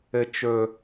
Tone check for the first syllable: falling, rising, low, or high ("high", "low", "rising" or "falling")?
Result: high